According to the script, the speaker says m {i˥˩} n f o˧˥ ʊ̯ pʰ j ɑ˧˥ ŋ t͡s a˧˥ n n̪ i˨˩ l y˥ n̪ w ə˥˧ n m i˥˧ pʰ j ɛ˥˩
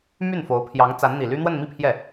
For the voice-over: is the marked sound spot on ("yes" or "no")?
no